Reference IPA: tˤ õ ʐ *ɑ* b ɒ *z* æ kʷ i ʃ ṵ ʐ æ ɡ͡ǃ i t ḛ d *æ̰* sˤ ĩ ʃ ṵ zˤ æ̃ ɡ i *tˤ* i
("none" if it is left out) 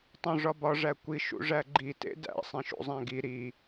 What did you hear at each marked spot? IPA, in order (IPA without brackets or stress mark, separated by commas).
ɒ, ʐ, æ̰, ɾ